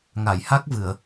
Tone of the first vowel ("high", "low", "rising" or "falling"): low